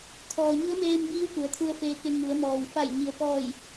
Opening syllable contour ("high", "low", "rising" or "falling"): low